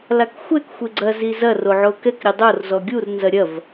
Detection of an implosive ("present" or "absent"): absent